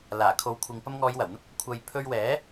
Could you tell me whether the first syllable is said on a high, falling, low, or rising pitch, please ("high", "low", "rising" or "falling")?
low